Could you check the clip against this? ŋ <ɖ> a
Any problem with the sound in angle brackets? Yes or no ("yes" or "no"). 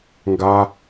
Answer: yes